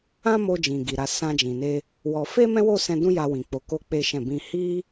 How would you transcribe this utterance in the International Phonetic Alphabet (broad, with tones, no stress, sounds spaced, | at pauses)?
ã˦ m o˧ d͡ʒ ĩ˨ ɡ i˨ ɾ a˨˦ s ã˧ d͡ʒ ĩ˨ n e˧ | w ɔ˧ f e˦ m ɛ̃˦ w o˦˨ s ɛ̃˧ d ũ˦ j a˧ w ĩ˨ k͡p o˨˦ k o˦ k͡p e˦ ʃ ɛ̃˦˨ b ĩ˧ h i˦